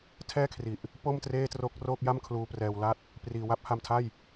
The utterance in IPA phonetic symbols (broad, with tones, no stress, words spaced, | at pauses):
tʰɛː˥˩kʰri˨˩ʔ | po˥˩mtreː˥˩tro˦˥k̚roː˥˩k̚ ja˥˩mkʰluː˧prɛː˧wla˥˩t̚ | priː˨˩ wa˦˥p̚ha˧mtʰa˥˩j